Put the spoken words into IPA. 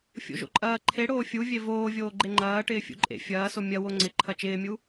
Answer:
fʲ o̰ ʒ o̰ ǃʼ ɐː ǃʰ e ɽ oː fʲ u vʲ e v oː vʲ oː ɡ͡ǃ e ŋ͡ǃ ɐː ʈ ɪː fʲ ṵ ǃʼ ḛ fʲ ɐː s o mʲ ɐ w o ŋ͡ǀ ɪ ǃʰ ɐ t͡ʃ ɪː mʲ u

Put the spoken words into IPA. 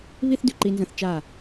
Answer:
β i˥ θ d ʉ˧ ǃ i˧ n z ɐ̃˧ θ t͡ʃ a˧˩

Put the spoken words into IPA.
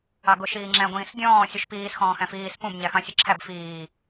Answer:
ɑ ɡ ʊ ʃ iː ŋ͡ǁ æ̃ ɡʷ ĩː s dʲ ɔ̃ː sʲ u ʃ p iː s x ɔ̃ː x æ̃ f iː s p ũ b ɲ æ x ɑ̃ sʲ ʌ ǁʰ æ b f iː

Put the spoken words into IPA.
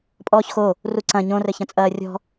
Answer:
pʼ ɔː ç x o | r u ǀ ɐ̃ ɲ õ r ɘ ç ɐ̃ t͡sʼ ɐː rʲ ɔ̤

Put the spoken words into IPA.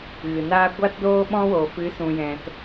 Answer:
ɣ ɨ˨ n aː˦ ɡʷ a˦ t d oː˦ ɓ ɔ̃˦ w oː˨ f ɨ˨˦ s ũ˨ j ɛ̃˨ t

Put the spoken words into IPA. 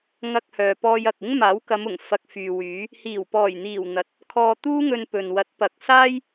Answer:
ŋ ɐ˧ k̚ h œː˨ p ɔː˧ j ɐ˨ k̚ ɪ˥ ŋ m aː˨˥ w k ɐ˨˧ m ʊ˨˩ ŋ f ɐ˧ k̚ f yː˨ w yː˨˥ | h iː˨˩ w p ɔː˨˩ j n̪ iː˨˩ w n̪ ɐ˨˥ t̚ | kʰ ɔː˧ t̪ uː˥ ŋ ɵ˧ n p ɵ˨ n w ɐ˨˥ t̚ p ɐ˨˥ k̚ s aː˥ j

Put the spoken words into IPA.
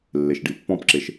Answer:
lː e ʃ ɖ i pː ɔ̃ p ǁ e ʃ

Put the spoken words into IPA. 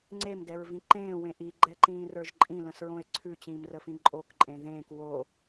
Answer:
ŋ͡ǀ e m d ɛ ɹ v ĩ ǃ ẽː w ẽ ʔ i ɡ͡ǃ ɛ ǃ ĩː r ə˞ ʒ ǃʼ ĩ l ə̃ s ɹ õ e̯ ǀʰ ʉ t͡ɕ ĩː m r ə f ĩ ǃʼ o k ǃʼ ẽ ð ẽː k w o

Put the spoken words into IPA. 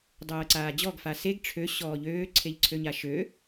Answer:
dˤ ɤː ǀ aː d͡ʑ ɔ ɡ f a s e ɡ ʈ͡ʂʰ ø ɕ ɔː ʎ øː ǀʰ e ʎ ǀʰ ø ɲ a ʃ ø

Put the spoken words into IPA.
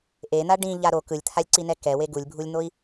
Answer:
ʔ e n̪ a ɖ ĩ ʎ a ɾ o k ɯ lʲ t̪ʰ a lʲ ǀ i n ɛ k ɛ w e ɡ u lʲ bʱ u lʲ n̪ o i̯

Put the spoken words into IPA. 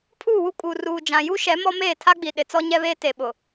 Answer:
pʰ uː˦˨ w u˦ kʼ uː˨ r uː˨ d͡ʒ ã˨ j u˦ ʃ ɛ˨˦ m ɔ˦ m eː˦˨ tʰ a˦ ɡ͡b i˨ ɗ ɪ˨ t͡s ɔ˦ ɲ ɛ˦ β eː˦ t e˨ ɓ ʊ˨

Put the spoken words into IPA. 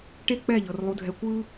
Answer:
ʈ e˦ k͡p ɛ˦˨ ʎ ɤ˨ r lˠ u˦ dʱ ɛ˦ kʷ ɯ˦

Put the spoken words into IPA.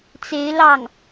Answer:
t͡s e˧˥ ɪ̯ l ɑ˥˩ ŋ

